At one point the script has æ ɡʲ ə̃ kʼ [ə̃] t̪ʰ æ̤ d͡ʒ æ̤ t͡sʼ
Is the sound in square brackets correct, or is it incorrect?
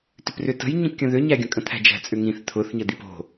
correct